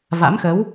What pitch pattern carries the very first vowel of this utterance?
rising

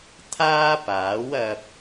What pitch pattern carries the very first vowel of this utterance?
high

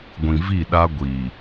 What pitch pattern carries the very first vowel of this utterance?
low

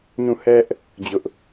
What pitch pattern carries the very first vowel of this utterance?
falling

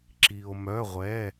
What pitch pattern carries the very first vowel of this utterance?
low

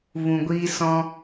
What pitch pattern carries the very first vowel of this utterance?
low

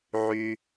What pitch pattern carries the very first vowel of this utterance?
high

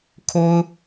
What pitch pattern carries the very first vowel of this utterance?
high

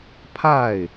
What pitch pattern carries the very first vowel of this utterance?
falling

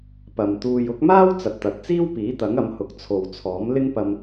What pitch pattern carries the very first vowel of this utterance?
low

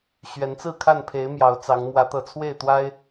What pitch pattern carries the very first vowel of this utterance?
rising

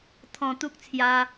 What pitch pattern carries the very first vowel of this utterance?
low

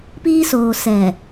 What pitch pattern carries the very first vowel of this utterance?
high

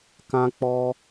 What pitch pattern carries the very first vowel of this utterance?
high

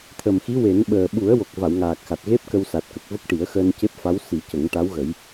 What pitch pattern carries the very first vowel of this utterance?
low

